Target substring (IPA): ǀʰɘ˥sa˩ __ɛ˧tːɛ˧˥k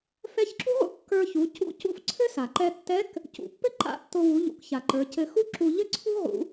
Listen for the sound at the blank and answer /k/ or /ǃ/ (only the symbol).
ǃ